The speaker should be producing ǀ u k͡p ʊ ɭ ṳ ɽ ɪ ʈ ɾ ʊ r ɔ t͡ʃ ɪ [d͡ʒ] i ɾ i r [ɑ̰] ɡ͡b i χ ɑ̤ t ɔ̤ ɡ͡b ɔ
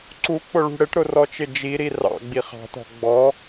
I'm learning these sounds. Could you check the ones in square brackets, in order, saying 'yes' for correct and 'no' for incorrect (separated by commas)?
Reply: yes, yes